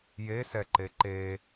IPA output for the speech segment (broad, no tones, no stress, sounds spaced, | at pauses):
j e s ɛ ǃ e ǃ e